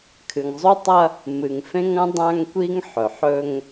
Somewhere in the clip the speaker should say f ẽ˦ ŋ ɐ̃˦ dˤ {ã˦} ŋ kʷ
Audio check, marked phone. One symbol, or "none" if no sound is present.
ã˦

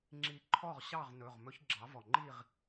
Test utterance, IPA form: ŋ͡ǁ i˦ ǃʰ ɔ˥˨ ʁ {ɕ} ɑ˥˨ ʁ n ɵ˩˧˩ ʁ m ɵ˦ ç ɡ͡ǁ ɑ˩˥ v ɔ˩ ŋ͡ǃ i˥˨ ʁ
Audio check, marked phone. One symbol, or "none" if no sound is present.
ɕ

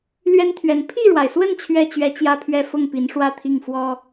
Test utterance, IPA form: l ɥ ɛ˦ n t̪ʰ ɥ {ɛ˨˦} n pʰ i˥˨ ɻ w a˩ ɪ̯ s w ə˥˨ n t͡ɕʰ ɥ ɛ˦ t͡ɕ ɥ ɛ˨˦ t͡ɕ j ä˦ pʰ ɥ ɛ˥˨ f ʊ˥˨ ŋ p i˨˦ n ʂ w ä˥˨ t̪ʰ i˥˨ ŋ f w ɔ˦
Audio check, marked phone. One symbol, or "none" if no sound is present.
ɛ˨˦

